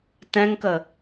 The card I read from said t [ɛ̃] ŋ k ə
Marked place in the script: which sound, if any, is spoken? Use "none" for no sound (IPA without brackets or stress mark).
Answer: ɛ̃